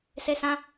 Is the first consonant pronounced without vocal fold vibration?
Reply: yes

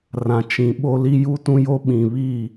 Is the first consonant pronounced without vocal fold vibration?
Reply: no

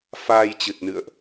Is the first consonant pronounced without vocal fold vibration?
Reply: yes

